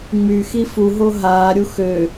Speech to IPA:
ŋ͡m y x i f u ɦ o ɦ aː ɾʲ u x ø

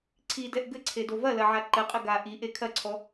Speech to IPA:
ǀʰ i d ɛ ʔ ɡ ɘ ǀʰ e d o v ɐ l ɐ ʕ a ǃ ɘ qʼ ɘ ɡ a ʔ i ʔ e kʰ ɐ ǀʰ ɔ

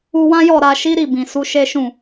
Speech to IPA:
u˧ w ã˦ j ɔ˦˨ ɾ a˨ ʃ i˨˦ ɾ i˦˨ b ĩ˨ s u˨˦ ʃ e˦ ʃ ũ˦˨

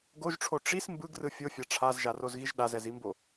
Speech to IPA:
ɡ o ʒ ʈ͡ʂʰ o ʈ͡ʂ i s m b ɯ ɡ r ɯ fʲ o fʲ a ʈ͡ʂʰ a z ʒ a r o z ɣ i ʒ ɗ a z ɛ z i m b o

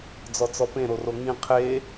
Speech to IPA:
d͡z ɔ t͡s ɔ p ẽ ɾ o r o ŋ ĩ qʰ e

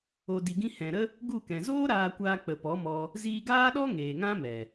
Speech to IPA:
o˨ d i˨ ɡ ĩ˧ h ɛ̃˨ ɾ ə˦ | ɡ u˦˨ k ɛ̃˨ z oː˦ ɾ aː˧ kʷ aː˧ k͡p ə˨ p ɔ˨˦ m ɔ˧ | z iː˧ ɡ aː˦ ɗ ɔ˦ ŋ eː˨ ŋ ã˦ m ɛ˨

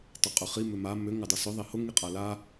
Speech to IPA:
tˤ ʊ qʼ ʏ χ i m ʏ m a m ʏ ŋ ʏ dˤ ɐ s ʏ ðˤ i h ʊ ŋ i qʼ a l a

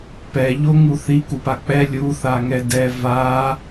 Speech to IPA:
p ɛ ʎ o ŋ u θ i k u p a k͡p ɛ lʲ u θ a ŋ ɛ d ɛ v a

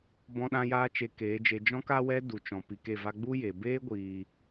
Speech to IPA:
b ɔ̃˧ ɗ ã˧ j aː˧ t͡ʃ e˧ k eː˨˦ d͡ʒ e˧ d͡ʒ ɔ̃˦ k a˦ w ɛ˦ d u˨ t͡ʃ ɔ̃˨ p i˨ k e˦˨ v a˦ ɡ͡b u˦ j e˨ b eː˦ ɡʷ iː˨

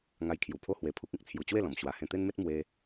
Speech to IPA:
ŋ a˧ j kʰ j u˨˩ pʰ o˦ h w e˧ pʰ u˦ k̚ ĩ˦ k̚ t͡sʰ j u˧ t͡ɕ w e˥˧ l ɔ̃˨˩ m ɕ w a˨˩ h ẽ˧ t̪ e˦ n m e˦ t̚ m w e˦

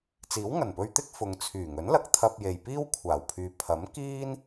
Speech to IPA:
t͡s iː˨˥ w ŋ ɐ˨˩ n p ɵ˧ ɥ t̪ ɪ˥ k̚ f ʊ˨ ŋ t͡sʰ yː˨˩ ŋ ɵ˨˥ n l ɐ˨˥ k̚ t̪ʰ ɐ˧ p̚ j e˨ j p iː˥ w kʷʰ aː˨˩ w pʰ yː˨˧ pʰ ɐ˨˥ m k iː˥ n

